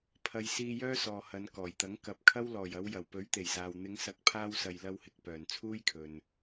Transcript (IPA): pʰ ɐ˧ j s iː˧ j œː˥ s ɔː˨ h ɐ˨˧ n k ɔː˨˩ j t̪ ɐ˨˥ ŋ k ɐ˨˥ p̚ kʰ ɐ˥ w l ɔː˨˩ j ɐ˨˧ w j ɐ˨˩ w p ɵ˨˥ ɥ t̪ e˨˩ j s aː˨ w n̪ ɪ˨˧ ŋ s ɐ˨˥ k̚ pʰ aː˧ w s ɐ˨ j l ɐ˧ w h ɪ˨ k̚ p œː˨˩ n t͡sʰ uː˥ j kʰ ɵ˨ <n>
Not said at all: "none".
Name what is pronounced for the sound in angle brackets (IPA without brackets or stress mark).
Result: n